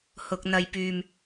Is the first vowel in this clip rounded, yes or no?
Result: yes